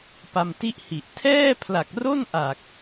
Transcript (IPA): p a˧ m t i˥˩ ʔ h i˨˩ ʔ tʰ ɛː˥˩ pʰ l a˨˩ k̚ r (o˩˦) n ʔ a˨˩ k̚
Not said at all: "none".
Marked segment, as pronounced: o˥˩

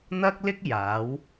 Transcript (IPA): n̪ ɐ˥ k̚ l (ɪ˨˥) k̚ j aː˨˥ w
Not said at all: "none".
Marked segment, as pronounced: ɪ˥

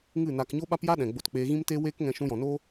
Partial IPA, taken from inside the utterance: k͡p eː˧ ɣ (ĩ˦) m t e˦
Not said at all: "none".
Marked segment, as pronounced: ĩ˦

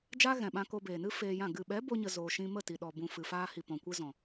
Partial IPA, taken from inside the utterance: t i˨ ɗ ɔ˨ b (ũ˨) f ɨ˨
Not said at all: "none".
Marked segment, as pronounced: ũ˨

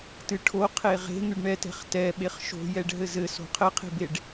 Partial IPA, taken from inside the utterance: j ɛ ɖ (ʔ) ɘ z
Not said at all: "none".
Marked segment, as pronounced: ɦ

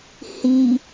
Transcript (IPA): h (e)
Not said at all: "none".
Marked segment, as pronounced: i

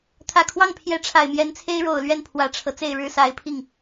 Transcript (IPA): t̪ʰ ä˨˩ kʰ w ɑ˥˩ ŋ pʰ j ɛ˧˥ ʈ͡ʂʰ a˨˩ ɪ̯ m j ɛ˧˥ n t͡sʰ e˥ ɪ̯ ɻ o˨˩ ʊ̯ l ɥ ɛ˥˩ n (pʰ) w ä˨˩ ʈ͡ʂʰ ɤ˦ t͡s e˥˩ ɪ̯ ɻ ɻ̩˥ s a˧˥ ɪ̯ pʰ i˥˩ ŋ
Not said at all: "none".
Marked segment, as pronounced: pʰ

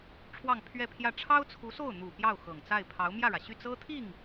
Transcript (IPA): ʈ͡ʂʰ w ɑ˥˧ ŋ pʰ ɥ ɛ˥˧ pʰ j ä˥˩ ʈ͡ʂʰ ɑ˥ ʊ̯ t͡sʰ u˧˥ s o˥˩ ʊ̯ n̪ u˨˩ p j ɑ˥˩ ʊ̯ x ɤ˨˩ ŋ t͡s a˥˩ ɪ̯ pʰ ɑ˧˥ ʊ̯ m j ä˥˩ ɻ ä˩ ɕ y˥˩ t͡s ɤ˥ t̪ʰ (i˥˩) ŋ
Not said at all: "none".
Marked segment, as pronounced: i˥˩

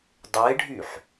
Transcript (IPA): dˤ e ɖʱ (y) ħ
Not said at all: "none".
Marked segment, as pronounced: y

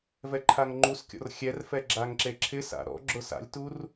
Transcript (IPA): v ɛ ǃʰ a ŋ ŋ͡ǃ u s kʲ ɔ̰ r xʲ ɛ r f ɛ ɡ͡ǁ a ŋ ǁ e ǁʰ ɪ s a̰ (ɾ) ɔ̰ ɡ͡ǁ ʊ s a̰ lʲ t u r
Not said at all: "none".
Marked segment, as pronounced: ɾ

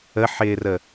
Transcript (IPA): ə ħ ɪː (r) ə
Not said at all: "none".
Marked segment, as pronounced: r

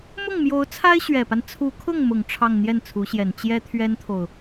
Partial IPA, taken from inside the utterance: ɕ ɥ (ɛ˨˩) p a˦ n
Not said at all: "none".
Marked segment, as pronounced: ɛ˨˩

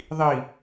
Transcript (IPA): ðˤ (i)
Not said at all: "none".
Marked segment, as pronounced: i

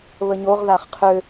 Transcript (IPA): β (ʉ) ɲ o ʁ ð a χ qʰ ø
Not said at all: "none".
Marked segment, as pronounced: ə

